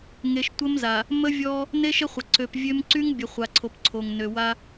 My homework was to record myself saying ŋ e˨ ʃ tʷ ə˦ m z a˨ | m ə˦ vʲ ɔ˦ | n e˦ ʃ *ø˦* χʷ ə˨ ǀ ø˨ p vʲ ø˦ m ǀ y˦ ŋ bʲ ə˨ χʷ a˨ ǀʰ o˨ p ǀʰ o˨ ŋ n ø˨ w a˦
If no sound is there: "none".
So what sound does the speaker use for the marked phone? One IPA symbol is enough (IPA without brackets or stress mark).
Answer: ə˦